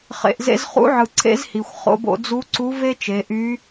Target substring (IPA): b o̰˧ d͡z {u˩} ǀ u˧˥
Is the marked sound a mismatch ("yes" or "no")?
yes